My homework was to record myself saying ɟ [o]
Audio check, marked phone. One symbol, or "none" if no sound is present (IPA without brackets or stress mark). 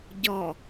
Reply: ɔ